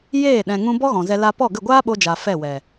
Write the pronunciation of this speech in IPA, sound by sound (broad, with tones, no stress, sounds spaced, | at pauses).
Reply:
j eː˦˨ ɗ ɛ̃˨ ŋ ũ˧ b ɔ˦ ɣ ɔ̃˨ z ɛ˧ l a˧ p ɔ˦˨ ɡ ə˦˨ ɡʷ aː˦ ɓ o˧ d͡ʒ a˨ f ɛ˦˨ w ɛ˨